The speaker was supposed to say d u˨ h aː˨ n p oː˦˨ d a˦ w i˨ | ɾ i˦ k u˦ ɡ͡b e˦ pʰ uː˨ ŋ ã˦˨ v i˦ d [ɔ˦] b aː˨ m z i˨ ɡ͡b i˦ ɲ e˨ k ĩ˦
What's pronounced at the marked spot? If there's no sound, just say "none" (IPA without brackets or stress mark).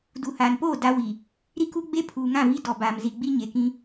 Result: ɔ˨